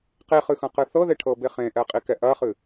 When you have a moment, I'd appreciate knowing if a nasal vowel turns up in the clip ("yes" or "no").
yes